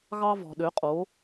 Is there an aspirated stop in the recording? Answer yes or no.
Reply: no